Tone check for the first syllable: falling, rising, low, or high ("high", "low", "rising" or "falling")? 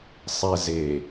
low